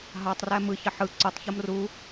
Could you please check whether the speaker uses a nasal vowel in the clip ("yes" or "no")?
no